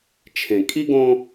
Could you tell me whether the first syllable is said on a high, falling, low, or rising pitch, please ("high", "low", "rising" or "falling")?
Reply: low